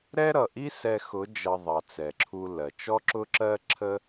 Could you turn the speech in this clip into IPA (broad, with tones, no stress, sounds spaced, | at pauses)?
ɾ ɛ˦ ɾ ʌ˨ ʔ i˦ s ɛ˧ x ʊ˨˦ d͡ʒ ʌ˧ ðˤ ɑ˨ t͡s ɛ˨ ǁʰ u˧ l ɜ˨ t͡ʃ ɔ˦ ǁ ʊ˦ ǁ ɜ˦ ǁʰ ə˦